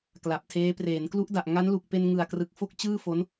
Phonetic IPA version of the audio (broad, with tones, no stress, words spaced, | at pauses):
kla˨˩p̚tʰeː˦˥ preː˩˦nklu˦˥ʔda˨˩ʔ ŋa˦˥nlu˨˩k̚pe˧n ŋɯ˨˩a̯ krɯ˨˩k̚fo˥˩k̚t͡ɕɯː˥˩ fo˦˥n